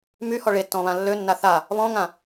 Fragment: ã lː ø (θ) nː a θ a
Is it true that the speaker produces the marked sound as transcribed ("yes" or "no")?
no